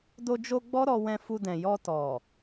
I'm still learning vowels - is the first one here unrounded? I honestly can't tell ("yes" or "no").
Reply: no